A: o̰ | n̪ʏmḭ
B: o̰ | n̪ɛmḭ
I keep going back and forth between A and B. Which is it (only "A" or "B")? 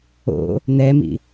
B